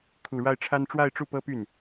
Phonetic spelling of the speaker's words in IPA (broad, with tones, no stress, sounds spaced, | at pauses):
kʰ u˨˩ ɻ a˥˩ ɪ̯ ʈ͡ʂʰ a˥ n ʈ͡ʂ w a˥˧ ɪ̯ ʈ͡ʂ u˥˩ p ɤ˥ p y˥˩ n